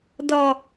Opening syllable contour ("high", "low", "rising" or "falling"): low